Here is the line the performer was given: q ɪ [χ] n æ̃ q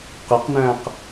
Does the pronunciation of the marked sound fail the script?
yes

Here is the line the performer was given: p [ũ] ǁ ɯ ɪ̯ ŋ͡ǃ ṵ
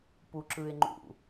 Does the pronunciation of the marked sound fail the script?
yes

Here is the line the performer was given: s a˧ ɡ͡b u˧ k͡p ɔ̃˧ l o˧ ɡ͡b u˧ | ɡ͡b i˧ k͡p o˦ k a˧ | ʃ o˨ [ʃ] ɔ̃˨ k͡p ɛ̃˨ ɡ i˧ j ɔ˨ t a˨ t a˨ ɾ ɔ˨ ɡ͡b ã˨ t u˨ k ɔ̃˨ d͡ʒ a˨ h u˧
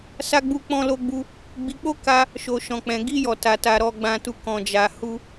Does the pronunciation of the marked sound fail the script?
no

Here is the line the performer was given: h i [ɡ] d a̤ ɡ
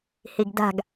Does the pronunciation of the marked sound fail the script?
no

